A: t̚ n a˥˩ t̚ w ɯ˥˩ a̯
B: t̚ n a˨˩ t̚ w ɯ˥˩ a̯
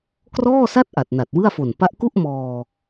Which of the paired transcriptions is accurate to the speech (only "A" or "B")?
B